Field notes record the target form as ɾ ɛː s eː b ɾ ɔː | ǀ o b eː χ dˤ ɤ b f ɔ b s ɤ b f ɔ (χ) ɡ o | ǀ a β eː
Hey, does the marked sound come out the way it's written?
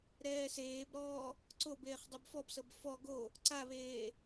no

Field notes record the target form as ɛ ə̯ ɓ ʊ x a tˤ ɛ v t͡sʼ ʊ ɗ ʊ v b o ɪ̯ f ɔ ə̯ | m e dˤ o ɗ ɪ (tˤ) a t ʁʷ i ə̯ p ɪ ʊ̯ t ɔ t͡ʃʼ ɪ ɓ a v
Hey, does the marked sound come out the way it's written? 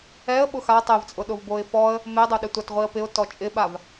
no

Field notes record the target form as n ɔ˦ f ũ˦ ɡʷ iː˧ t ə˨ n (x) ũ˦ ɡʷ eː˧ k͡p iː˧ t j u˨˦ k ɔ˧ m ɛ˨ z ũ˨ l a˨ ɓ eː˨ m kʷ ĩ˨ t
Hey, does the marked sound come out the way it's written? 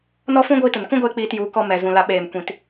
no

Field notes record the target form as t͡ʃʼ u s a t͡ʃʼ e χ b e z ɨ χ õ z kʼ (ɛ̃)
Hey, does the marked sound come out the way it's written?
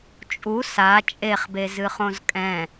yes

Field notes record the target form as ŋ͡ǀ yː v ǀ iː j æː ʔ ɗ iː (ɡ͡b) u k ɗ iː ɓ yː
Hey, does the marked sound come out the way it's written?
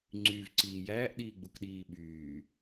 yes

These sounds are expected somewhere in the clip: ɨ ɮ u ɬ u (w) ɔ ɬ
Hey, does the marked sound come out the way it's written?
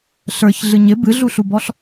no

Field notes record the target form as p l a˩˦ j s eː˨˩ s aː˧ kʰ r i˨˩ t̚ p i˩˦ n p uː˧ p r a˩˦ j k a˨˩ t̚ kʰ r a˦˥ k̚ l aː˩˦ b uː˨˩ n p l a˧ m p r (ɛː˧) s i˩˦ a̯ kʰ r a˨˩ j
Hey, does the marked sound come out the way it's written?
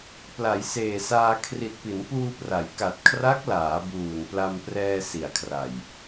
yes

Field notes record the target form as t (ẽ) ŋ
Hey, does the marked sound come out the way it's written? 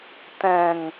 no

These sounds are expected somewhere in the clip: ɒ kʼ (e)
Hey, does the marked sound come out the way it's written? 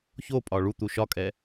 no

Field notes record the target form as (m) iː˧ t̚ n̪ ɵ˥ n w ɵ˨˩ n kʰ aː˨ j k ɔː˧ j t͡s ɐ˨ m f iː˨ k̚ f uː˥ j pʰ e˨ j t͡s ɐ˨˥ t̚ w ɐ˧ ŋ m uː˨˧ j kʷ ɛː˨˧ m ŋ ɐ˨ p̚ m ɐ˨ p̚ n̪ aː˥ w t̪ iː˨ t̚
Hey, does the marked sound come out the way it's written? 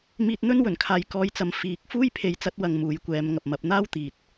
yes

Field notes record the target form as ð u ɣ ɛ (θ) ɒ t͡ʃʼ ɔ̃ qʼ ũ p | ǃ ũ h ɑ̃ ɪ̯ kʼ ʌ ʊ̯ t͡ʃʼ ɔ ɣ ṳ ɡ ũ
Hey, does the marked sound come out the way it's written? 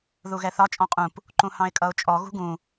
yes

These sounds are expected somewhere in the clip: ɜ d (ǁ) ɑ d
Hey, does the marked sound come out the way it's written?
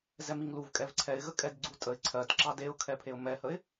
yes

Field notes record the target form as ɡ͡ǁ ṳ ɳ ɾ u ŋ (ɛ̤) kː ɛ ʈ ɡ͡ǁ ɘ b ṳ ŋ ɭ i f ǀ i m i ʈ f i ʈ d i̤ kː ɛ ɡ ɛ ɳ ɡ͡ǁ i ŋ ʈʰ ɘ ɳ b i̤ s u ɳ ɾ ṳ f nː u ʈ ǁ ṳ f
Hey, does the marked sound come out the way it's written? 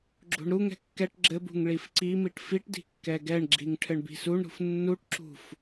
yes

